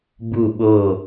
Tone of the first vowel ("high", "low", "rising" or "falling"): falling